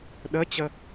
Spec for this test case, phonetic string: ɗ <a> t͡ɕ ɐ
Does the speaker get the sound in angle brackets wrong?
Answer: yes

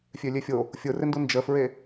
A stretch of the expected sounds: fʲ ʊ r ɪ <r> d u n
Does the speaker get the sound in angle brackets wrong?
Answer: yes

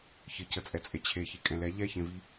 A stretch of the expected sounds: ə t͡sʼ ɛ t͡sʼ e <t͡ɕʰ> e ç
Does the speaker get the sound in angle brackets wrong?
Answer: no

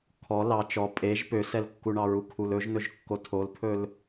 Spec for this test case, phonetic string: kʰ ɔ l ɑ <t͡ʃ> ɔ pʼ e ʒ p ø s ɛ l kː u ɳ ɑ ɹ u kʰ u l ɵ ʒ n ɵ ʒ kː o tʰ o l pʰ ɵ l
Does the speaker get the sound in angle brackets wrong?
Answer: no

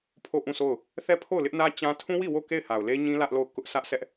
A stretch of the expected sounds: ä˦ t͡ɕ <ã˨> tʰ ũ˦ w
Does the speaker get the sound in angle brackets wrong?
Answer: yes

